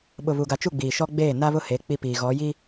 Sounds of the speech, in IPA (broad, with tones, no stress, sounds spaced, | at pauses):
ɓ ʊ˨ β u˨ ɡ a˨ t͡ʃ u˦˨ ɡ͡b iː˨ ʃ ɔ˦ ɡ͡b eː˦˨ n a˦ β ʊ˦˨ h e˨˦ k͡p i˦ p iː˨ ɣ ɔ˨˦ j i˦